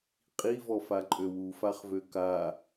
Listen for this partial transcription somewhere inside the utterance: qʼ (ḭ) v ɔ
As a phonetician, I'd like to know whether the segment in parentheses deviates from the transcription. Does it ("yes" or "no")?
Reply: yes